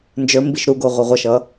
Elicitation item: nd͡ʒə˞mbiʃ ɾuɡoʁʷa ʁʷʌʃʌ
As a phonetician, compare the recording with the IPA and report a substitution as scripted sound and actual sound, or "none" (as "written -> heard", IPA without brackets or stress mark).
a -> ʌ